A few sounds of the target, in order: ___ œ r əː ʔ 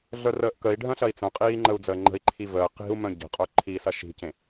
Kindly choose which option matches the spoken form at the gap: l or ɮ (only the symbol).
ɮ